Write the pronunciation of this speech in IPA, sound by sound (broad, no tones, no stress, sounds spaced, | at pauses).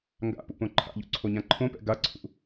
ŋ ɡ a̰ p ṵ p õ ǃʰ a̰ ʎ ṵ ǀʰ o ɲ ã ǃʰ õ p ɛ̰ ɡ a ǀʰ ṵ